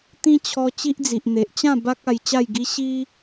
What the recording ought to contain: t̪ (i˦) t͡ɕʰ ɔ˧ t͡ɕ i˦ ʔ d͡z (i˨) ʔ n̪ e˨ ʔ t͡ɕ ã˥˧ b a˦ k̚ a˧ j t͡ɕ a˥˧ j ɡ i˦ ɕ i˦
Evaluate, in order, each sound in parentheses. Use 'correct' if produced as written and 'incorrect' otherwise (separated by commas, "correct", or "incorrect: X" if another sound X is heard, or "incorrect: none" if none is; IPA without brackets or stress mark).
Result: incorrect: ĩ˦, correct